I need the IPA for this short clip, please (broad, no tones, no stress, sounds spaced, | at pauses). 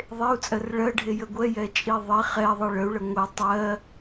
ðˤ e u̯ t͡sʼ ɜ r ɭ ɜ ɖʱ e j ə ɡʷ ɛ j ɛ t͡ʃʼ i ðˤ i χ ɛ ðˤ e ɭ ə u̯ ɭ ə ŋʷ ɛ tˤ ɜ